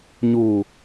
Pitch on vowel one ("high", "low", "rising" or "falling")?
low